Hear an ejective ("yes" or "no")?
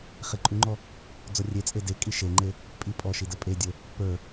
yes